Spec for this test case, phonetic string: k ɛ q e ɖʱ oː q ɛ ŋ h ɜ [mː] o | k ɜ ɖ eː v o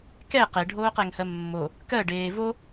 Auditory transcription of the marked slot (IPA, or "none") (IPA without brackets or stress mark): mː